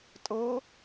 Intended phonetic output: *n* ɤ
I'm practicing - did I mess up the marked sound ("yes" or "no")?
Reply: yes